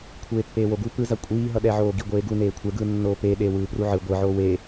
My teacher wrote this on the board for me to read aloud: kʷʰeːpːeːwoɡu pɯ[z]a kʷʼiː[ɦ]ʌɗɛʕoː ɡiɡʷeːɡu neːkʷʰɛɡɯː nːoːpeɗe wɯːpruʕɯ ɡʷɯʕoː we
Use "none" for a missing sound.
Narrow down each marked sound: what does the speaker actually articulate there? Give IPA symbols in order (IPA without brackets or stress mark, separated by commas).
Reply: z, ɦ